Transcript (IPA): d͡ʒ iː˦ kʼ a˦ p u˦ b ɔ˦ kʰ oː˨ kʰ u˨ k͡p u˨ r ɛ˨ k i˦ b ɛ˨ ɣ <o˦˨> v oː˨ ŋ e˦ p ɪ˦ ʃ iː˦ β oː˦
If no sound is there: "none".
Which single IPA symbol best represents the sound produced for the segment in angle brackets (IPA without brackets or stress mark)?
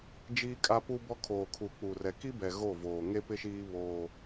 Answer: o˦˨